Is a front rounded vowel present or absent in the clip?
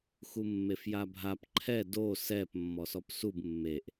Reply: absent